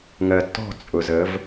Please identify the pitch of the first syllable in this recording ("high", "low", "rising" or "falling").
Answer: low